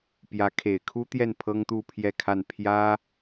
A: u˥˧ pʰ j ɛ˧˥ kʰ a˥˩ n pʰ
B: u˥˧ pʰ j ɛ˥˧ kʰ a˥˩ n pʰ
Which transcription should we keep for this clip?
B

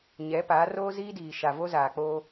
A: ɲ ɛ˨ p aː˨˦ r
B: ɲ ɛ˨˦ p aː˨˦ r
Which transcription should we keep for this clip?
B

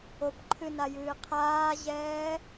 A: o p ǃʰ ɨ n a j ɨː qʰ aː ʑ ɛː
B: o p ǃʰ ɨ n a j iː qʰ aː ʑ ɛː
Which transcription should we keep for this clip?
A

